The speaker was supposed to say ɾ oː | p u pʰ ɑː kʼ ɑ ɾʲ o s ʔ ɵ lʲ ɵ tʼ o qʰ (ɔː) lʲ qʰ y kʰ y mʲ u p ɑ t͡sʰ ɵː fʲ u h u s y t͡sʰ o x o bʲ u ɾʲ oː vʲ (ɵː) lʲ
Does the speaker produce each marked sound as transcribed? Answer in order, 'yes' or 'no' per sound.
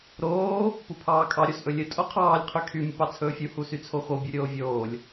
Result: no, no

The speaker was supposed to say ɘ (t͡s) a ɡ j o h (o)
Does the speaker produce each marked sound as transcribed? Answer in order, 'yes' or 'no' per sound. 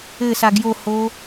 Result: no, yes

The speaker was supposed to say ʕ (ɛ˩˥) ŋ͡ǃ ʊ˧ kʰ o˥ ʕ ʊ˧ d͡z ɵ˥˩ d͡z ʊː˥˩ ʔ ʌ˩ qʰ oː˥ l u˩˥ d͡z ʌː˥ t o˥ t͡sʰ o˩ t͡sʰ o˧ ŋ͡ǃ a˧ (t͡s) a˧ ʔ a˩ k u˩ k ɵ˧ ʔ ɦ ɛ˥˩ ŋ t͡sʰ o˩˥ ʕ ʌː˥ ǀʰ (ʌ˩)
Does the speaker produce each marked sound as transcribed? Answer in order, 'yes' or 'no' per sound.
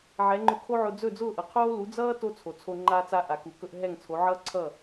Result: yes, yes, no

